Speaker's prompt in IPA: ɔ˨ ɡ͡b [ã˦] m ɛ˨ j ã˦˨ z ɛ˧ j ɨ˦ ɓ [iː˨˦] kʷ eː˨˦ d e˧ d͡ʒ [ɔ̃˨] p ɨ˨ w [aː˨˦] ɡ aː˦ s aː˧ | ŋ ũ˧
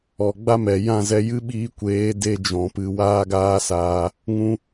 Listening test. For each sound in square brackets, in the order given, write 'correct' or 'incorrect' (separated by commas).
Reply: incorrect, incorrect, correct, incorrect